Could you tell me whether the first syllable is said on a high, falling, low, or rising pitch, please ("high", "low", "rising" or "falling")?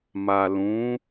low